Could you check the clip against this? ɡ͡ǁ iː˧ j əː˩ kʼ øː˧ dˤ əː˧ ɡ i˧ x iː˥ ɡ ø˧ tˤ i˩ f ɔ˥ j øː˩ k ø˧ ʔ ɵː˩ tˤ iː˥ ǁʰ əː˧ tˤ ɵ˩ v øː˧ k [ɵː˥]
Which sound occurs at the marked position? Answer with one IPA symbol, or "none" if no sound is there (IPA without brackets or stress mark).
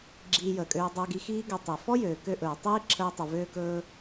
ɵː˧